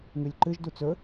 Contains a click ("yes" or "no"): yes